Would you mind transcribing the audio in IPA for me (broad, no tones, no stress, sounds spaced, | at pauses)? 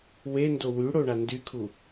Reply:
w e n d o w y ɽ o ɳ a n d y kʰ u